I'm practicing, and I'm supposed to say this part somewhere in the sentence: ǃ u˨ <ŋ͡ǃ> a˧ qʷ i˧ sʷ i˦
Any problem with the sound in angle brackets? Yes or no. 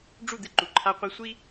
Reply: yes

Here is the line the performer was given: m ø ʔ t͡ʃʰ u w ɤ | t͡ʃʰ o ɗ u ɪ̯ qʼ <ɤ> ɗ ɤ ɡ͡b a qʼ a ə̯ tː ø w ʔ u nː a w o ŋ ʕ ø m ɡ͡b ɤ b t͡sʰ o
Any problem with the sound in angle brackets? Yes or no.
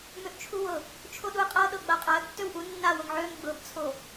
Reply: no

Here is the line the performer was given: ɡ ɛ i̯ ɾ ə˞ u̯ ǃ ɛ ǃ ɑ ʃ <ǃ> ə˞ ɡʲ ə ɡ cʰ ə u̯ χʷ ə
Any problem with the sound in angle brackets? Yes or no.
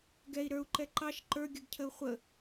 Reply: no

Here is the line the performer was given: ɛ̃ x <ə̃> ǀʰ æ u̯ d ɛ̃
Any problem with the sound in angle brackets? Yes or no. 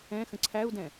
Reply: no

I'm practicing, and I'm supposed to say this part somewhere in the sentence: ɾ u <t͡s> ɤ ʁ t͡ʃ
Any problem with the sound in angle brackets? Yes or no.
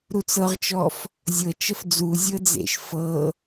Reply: no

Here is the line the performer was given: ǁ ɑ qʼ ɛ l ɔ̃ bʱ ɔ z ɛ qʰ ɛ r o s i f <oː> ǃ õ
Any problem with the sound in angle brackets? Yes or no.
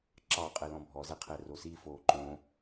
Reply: no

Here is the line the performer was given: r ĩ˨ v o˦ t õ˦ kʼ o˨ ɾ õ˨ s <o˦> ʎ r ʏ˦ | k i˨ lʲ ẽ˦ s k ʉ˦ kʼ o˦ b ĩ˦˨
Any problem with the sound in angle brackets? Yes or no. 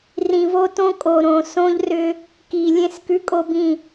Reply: yes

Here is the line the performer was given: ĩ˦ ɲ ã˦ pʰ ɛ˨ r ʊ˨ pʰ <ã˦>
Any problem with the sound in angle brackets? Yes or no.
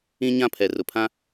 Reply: no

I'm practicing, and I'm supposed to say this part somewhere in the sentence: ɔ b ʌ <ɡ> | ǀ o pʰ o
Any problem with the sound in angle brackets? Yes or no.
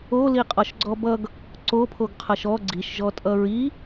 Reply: no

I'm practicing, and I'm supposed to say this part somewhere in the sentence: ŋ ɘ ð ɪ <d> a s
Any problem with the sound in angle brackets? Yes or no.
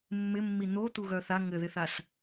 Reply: yes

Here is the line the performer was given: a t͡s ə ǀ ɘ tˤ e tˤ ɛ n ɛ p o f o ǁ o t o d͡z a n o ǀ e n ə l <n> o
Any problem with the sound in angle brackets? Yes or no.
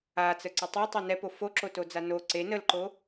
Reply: yes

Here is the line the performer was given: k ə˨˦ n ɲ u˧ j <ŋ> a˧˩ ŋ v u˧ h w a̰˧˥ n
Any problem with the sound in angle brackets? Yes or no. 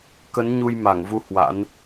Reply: yes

